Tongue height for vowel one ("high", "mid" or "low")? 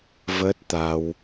mid